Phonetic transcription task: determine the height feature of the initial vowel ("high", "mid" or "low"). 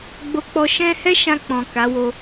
mid